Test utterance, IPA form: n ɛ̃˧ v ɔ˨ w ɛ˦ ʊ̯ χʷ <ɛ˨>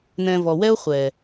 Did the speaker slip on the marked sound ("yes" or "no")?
no